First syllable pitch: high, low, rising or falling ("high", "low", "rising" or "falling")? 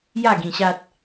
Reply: falling